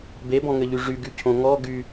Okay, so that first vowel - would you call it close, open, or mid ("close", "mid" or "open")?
mid